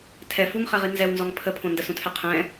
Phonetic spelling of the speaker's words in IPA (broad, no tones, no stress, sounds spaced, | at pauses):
tʰ ɛ f u ŋ χ ɛ ʁ i n z ɛ w n z ɔ ŋ pʰ ə pʰ õ n d ə s ũ tʰ ɛ qʰ ɛ̃